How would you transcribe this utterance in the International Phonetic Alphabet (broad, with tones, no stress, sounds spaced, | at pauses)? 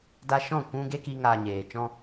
d a˧ ʃ ɔ̃˦˨ kʷ ũ˦ ɡ e˦ k i˧ ŋ aː˨ ɲ eː˨ t͡ʃ ɔ̃˦